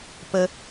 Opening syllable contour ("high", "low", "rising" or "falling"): high